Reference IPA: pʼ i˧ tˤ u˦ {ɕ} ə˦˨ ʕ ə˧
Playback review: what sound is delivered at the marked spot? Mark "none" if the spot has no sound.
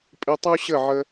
ɕ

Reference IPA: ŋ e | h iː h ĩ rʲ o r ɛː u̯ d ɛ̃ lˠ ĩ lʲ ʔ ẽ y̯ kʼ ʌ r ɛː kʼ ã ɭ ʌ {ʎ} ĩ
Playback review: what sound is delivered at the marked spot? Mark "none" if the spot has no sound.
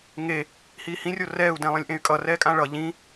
ʎ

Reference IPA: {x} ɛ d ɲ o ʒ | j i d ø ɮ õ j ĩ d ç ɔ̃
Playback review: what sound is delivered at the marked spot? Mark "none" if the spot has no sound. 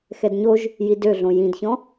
x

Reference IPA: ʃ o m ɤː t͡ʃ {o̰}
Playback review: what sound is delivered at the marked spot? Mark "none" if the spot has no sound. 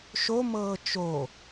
o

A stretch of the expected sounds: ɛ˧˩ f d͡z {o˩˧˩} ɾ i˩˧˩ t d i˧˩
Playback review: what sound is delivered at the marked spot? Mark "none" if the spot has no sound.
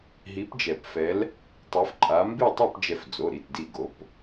o˩˧˩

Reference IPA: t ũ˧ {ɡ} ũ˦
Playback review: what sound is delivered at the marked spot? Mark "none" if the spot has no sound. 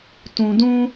d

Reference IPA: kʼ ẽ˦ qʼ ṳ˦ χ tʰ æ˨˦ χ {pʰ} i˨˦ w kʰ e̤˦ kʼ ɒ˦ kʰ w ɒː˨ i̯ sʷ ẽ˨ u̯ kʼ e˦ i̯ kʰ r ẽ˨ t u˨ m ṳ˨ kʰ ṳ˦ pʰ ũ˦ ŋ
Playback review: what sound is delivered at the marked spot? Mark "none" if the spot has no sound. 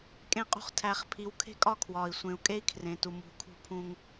pʰ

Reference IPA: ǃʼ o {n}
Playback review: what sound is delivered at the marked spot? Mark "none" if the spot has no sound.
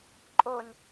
n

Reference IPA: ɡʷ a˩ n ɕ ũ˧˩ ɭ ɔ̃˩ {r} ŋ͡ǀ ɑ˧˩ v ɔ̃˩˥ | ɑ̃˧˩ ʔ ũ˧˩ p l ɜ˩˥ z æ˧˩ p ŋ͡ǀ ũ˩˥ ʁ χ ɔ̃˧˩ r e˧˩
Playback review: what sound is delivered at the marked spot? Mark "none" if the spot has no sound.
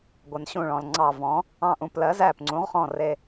l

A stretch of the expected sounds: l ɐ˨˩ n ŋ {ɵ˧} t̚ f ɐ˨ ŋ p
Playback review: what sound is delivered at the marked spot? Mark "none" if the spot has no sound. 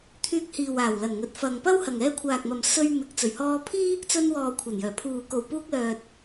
ɵ˨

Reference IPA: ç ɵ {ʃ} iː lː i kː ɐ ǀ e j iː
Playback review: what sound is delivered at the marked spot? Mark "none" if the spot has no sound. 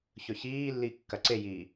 ç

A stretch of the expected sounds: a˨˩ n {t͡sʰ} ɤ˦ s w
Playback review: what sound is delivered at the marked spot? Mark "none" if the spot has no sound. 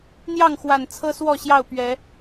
t͡sʰ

